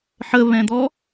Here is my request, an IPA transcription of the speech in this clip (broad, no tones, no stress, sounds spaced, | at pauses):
ħ ə β ɛ̃ d̪ ɔ